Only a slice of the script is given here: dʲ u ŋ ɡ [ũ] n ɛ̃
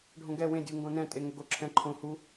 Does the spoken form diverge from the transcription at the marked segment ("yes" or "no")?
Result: yes